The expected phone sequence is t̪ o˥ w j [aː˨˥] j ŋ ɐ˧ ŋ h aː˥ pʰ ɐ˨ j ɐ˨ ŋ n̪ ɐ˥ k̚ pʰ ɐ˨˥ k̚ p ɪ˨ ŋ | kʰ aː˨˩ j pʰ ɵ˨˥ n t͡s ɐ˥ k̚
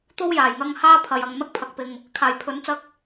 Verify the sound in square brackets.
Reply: incorrect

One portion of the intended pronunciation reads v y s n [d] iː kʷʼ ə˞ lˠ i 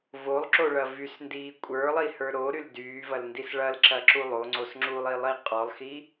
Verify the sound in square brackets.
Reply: correct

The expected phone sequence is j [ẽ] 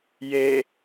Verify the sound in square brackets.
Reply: incorrect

